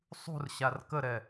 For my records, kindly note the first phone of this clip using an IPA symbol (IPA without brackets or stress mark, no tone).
sˤ